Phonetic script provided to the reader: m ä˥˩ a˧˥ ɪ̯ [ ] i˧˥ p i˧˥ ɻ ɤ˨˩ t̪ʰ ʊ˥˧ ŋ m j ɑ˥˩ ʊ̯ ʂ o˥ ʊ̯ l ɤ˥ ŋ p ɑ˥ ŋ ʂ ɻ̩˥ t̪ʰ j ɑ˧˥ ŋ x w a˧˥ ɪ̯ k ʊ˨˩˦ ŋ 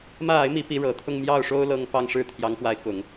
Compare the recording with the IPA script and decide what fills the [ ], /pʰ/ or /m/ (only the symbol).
m